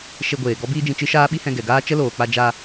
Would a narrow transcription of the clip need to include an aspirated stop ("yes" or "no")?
no